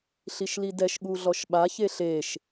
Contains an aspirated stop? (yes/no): no